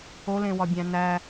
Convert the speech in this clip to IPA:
olẽwɒbʲæ̃ næ

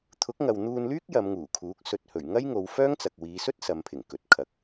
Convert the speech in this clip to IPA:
t̪ʰʊ˨˥k̚ŋɐ˨wn̪uː˧nlyː˥k̚ jɐ˨˧mŋuː˨˩kʰuː˨˥k̚ sɵ˨t̚hɵ˨˩ɥ ŋɐ˥jŋo˨˧wfœː˥ŋt͡sɐ˨k̚ wiː˨˧sɵ˥t̚ sɐ˨˧mpʰɪ˨˩ŋ kɵ˨t̚ kʰɐ˨˥k̚

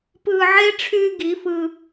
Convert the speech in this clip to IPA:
pɯː˧ʕe˦ ʈ͡ʂʰyː˧ ɡi˨˦fɯ˧

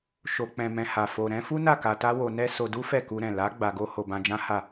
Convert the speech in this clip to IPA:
ʃo˨k͡pɛ̃˨ mɛ̃˧ha˨ fo˨ɾɛ̃˨˦fu˦na˦˨ ka˧ta˦wo˧ nɛ˦ so˧du˦ fɛ˦˨ku˧ɾɛ̃˨ la˨˦ ɡ͡ba˧ɡo˦ ho˧bã˧d͡ʒã˦ha˦˨

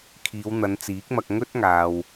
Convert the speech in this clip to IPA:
kʰiː˨˧wn̪ɐ˨˧nt͡siː˨˥k̚mɐ˧k̚ ŋɵ˥t̚ŋaː˨w

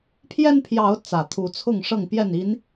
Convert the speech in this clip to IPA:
pʰjɛ˦npʰjɑ˨˦ʊ̯ t͡sä˨˩t̪ʰu˨˦ t͡sʰʊ˥˨ŋ ʂɤ˥˨ŋpjɛ˥˨ni˨˦n

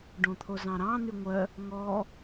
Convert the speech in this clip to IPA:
ɖõt̪ʰozɑ̃ɾɑ̃ n̪yŋʷœ | ŋɔ

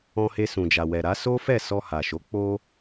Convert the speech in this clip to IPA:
ɔ̃˧he˧ sũ˨d͡ʒa˨wɛ˨ ɾa˨˦ so˦fɛ˦˨ sɔ˧ha˨ʃo˨˦ k͡po˦

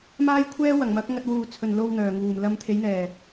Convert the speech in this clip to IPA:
maː˥jkʷʰɛː˥ wɐ˨˩ŋmɐ˨˥k̚ ŋɐ˧t̚wuː˨ t͡sʰɵ˨n lo˧w n̪œː˨˩ŋuː˨˩m lɐ˧mt̪ʰe˨˥jn̪ɛː˨˩

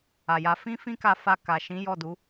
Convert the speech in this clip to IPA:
a˨ja˧ fĩ˦fĩ˦ka˧ fa˧ ka˨ʃĩ˨˦ jɔ˦˨du˨˦

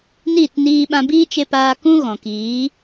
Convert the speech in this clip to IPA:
niː˦˨tniː˧ɓã˧ biː˦t͡ʃe˧paː˧ kũ˦ɣɔ̃˨kiː˨˦

